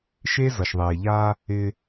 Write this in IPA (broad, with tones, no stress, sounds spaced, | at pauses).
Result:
ʃ e˦ z ʌ˨ ʃ ðˤ eː˨ ʎ aː˦ | ɪː˦